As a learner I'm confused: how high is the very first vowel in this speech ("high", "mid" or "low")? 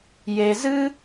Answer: mid